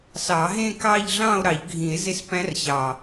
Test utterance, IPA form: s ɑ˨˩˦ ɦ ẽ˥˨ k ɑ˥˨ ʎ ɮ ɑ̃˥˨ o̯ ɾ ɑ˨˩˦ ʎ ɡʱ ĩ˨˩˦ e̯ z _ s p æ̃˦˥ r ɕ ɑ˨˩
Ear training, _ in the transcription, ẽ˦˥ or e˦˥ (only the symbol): e˦˥